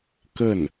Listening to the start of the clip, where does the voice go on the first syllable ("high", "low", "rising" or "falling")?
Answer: falling